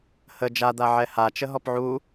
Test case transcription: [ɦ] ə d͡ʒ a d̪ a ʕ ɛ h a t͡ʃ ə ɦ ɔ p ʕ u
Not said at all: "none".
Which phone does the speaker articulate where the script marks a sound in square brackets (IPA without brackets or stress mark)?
h